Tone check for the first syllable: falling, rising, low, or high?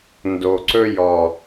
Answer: low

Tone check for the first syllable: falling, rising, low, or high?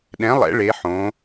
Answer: rising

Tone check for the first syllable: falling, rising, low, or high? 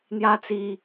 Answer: high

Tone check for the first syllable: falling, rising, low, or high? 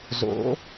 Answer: rising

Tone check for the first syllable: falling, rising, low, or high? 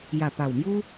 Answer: low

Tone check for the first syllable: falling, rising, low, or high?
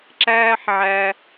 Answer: high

